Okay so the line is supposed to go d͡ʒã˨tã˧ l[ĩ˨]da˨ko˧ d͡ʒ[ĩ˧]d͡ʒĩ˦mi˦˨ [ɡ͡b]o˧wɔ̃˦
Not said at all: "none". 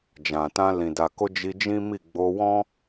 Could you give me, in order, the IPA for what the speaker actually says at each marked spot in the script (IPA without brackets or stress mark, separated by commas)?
ĩ˨, i˧, ɡ͡b